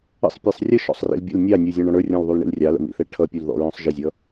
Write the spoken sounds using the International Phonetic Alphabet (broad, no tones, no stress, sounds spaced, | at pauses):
ə̰ sˤ pʲ ɛ sˤ rʲ ə ʃ ɔ̰ sˤ r ḭ l bʲ ə̰ l nʲ ɑ nʲ u zʲ ɔ̃ ɳ ɔ̃ ɽ ə˞ rʲ ɔ̃ l ðˤ u l ɳ ḭ l rʲ ɑ l ə̰ m ḭ θ ɛ ʈʰ ʌ pʲ u l ð ɔ̰ ɹ ɔ̃ sˤ ʒ ɪ zʲ ʌ